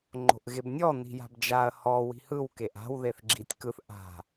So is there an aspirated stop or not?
no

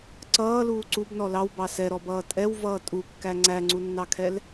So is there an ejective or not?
yes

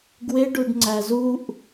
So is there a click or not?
yes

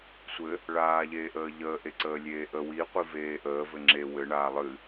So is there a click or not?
yes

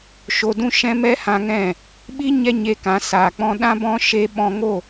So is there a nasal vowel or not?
yes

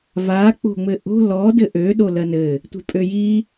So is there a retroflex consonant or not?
no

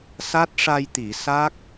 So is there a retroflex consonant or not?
yes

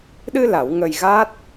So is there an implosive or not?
yes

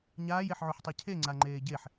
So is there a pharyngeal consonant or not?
yes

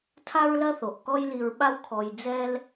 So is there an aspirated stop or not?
yes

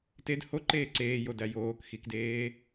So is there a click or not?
yes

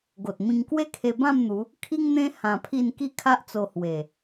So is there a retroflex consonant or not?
no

